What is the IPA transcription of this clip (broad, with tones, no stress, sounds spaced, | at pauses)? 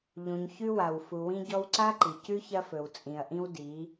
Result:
ʎ ũ˨ ɲ ç ʉ˦ w a˨ w f u˨ w ĩ˦ ɟ ɔ˦ w ǀ a˦ ǃ i˨ c ʉ˦ ç ɐ˦ f ɵ˨ w t͡sʼ ĩ˨ ɐ̯ ʔ ĩ˦ w d i˨˦